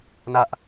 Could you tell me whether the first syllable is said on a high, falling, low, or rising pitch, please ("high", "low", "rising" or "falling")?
high